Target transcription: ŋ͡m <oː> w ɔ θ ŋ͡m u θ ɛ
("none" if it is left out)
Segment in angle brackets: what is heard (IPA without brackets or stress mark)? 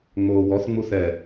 oː